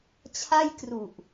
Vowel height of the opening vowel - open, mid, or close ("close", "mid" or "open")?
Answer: open